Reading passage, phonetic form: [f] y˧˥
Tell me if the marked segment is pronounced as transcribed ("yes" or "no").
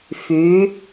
yes